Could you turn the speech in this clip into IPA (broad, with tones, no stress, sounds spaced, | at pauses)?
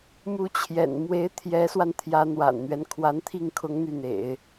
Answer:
m u˧˥ t͡ɕʰ j ɛ̰˨˩ n m w e˧˥ ɪ̯ t̪ʰ j ɛ˧˥ s w a˧ n t̪ʰ j ä˧˥ n̪ w a̰˨˩ n n̪ ɥ ɛ˦ n kʰ w a˧˥ n t̪ʰ i˥˩ ŋ kʰ ʊ˧˥ ŋ n̪ y˥˩ n̪ ḛ˨˩˦ ɪ̯